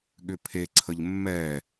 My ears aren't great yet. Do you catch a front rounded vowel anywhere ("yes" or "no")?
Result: yes